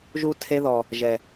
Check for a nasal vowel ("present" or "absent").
absent